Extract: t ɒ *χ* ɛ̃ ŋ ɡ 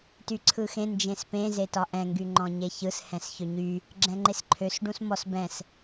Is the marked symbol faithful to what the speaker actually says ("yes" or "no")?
no